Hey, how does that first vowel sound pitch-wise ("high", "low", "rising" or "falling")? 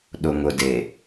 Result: low